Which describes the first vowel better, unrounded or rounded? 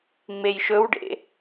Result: unrounded